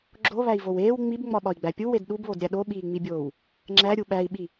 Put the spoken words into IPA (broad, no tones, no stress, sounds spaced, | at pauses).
ɡ͡ǁ o β æ i̯ v o w eː w ŋ͡m i b ŋ͡m ɒ ɓ ɒ i̯ ɡ͡b æ pʲ u w e d ɗ u b β o d ɾʲ æ ɗ o ɓ iː ŋ͡m i bʲ oː w | ŋ͡ǁ æ ɾʲ u ɓ æ i̯ ɓ i